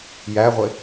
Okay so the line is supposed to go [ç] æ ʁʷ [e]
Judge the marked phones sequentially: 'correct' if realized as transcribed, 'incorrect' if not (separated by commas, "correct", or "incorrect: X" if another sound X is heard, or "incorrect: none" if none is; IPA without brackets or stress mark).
incorrect: j, correct